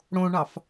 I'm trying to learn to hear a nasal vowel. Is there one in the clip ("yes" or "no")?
yes